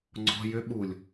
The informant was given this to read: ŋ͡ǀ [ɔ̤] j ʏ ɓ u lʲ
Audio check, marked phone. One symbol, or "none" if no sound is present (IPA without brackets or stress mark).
ɔ̤